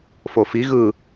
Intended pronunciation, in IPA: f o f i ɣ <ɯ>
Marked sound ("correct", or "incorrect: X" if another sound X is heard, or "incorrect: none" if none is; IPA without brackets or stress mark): correct